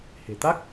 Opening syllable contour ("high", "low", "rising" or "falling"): low